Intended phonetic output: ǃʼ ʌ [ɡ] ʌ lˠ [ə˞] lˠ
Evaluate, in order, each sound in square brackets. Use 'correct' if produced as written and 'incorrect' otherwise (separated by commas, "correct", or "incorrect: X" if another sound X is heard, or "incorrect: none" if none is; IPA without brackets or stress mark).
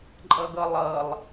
correct, incorrect: ʌ